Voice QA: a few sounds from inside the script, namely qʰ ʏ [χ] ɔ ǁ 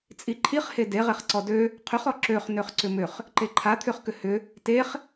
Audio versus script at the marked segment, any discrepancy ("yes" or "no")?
no